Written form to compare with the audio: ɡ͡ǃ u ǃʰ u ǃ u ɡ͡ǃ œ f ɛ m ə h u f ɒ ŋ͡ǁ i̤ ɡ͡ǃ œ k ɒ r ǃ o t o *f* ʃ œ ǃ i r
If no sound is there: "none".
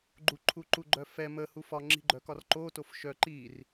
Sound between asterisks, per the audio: f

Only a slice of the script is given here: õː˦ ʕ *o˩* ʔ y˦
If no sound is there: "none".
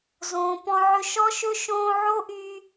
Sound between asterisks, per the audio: o˥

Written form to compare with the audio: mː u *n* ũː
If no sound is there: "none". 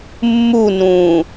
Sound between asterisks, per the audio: n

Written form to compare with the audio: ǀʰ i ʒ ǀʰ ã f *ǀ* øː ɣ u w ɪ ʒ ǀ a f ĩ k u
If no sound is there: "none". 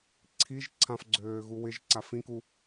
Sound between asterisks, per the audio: ɡ͡ǀ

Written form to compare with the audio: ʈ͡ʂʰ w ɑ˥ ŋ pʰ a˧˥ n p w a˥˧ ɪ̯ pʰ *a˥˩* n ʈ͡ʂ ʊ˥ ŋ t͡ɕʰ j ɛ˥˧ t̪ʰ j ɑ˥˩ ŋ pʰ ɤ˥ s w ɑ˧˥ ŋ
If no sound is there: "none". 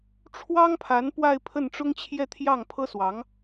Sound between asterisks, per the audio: ə˥˩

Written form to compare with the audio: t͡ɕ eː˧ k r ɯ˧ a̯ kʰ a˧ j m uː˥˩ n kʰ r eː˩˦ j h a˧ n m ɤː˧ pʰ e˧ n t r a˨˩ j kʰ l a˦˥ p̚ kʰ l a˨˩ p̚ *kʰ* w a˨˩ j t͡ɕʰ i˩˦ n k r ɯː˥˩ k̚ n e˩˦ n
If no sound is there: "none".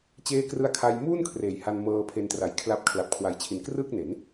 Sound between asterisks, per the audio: kʰ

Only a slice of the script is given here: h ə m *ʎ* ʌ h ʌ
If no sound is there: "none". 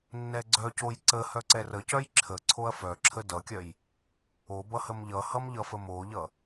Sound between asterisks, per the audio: ʎ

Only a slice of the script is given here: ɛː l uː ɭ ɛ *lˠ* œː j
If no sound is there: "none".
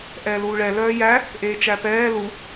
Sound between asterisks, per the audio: l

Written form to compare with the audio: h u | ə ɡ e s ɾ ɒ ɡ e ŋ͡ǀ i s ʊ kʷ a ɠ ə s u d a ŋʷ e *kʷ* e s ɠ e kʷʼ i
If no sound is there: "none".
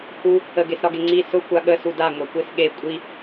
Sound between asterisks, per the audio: kʷ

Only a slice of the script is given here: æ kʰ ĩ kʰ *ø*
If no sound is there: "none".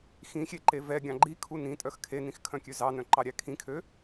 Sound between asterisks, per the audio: ø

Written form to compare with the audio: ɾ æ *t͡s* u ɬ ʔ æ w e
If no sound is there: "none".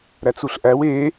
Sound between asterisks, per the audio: t͡s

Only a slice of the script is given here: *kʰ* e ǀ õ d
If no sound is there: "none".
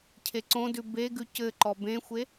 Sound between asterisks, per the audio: cʰ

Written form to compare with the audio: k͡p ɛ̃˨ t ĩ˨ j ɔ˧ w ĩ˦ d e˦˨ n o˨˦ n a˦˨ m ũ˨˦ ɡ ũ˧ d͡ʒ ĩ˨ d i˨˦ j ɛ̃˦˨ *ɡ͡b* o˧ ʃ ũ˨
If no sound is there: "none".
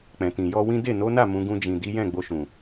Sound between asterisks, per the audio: ɡ͡b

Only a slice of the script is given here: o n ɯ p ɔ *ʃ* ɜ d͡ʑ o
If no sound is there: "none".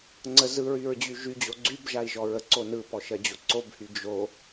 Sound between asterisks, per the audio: ʃ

